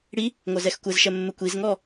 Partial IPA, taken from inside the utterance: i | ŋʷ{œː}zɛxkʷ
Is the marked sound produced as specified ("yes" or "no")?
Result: no